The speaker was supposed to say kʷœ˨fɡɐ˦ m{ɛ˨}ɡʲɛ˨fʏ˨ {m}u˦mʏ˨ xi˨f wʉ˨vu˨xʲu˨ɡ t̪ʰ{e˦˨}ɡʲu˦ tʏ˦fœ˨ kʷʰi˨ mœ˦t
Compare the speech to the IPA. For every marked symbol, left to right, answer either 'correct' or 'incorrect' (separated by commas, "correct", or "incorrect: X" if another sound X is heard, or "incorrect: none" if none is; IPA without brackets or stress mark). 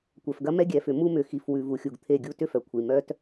incorrect: ɛ˦, correct, correct